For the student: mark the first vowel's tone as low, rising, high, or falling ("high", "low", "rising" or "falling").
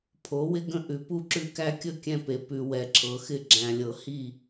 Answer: rising